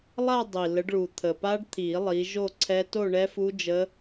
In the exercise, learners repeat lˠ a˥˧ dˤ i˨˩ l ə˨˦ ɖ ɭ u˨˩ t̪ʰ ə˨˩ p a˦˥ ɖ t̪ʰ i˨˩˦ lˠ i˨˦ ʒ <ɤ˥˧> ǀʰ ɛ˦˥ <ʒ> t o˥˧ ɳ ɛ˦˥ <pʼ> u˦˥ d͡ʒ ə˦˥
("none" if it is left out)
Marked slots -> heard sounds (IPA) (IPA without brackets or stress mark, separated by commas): o˥˧, none, f